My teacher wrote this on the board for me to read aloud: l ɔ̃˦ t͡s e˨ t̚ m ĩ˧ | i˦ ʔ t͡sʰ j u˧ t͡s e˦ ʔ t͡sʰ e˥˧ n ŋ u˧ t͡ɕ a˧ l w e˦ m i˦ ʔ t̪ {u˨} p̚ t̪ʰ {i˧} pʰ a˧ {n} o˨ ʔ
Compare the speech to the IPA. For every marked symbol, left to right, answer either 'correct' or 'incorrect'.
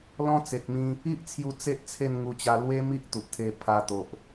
correct, incorrect, incorrect

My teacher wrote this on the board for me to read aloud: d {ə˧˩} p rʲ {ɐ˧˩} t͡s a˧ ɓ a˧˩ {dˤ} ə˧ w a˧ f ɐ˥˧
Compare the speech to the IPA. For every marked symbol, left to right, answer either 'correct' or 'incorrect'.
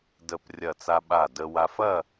correct, correct, incorrect

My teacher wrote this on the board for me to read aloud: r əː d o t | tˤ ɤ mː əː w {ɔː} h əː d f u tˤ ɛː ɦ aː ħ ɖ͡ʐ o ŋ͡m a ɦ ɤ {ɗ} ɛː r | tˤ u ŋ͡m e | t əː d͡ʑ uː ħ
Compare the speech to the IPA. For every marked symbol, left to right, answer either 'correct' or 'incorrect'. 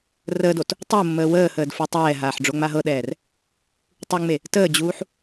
incorrect, correct

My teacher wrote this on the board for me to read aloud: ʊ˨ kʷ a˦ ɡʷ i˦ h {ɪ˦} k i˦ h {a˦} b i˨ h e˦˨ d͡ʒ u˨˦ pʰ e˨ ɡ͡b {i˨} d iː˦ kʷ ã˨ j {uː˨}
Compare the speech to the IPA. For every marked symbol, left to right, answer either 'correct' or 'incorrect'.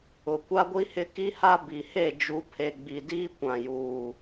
correct, correct, correct, correct

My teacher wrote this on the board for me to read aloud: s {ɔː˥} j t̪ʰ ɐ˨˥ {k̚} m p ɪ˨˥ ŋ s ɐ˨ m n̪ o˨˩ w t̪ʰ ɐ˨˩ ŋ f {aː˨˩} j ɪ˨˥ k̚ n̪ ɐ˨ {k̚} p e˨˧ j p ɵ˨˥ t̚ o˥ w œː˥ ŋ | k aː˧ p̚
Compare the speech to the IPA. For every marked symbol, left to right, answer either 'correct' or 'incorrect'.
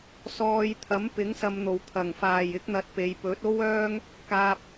incorrect, incorrect, correct, incorrect

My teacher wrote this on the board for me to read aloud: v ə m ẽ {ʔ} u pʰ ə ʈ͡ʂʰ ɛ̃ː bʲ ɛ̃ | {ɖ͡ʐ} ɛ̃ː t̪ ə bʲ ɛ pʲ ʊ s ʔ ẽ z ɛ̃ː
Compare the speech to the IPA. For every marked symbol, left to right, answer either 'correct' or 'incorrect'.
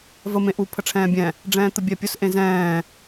correct, correct

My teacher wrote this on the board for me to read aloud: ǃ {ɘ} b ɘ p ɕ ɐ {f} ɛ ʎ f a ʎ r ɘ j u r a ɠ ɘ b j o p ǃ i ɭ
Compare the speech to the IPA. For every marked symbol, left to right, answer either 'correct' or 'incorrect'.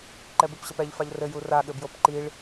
incorrect, incorrect

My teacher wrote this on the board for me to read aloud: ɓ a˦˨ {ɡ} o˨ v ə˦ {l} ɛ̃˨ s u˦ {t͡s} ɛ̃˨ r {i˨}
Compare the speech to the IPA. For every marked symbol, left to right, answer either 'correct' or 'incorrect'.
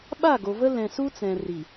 correct, correct, correct, correct

